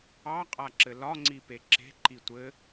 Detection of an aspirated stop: absent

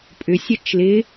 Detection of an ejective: present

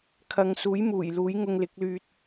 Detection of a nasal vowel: absent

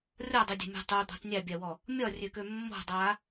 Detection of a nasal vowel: absent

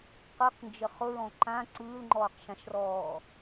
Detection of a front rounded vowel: absent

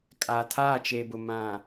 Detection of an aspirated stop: present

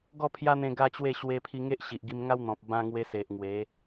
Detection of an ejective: absent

